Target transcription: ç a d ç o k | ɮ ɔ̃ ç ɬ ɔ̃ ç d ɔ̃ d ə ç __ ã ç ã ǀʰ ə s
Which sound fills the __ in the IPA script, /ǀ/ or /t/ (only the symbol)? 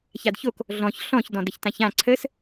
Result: t